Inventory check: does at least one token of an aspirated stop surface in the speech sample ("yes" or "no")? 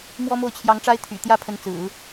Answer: yes